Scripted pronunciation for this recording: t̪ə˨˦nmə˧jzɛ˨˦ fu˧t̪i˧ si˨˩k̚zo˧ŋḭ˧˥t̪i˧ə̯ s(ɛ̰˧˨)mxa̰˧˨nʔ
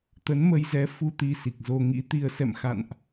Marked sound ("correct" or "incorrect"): correct